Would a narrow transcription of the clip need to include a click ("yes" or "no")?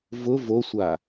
no